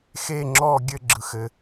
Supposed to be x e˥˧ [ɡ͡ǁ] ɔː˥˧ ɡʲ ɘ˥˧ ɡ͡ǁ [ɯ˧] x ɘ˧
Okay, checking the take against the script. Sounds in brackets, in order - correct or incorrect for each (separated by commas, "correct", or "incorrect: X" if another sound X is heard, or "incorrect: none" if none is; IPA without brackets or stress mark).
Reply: incorrect: ŋ͡ǁ, correct